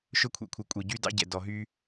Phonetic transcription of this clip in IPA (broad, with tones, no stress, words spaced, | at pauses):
ʃɵ˦kʷʰɛ̰˨kʷʰɛ˨ kʷʼe˨ɟy˦dɑ̰˦ɟɛ̰˨ dɔ˨ɦy˦